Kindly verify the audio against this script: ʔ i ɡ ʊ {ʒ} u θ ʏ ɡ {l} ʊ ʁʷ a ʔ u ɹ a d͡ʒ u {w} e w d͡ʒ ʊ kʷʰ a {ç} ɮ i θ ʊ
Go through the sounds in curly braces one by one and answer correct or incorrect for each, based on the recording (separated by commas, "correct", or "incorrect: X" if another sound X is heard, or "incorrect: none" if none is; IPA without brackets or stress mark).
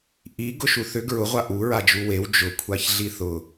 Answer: incorrect: ʃ, incorrect: ɹ, correct, correct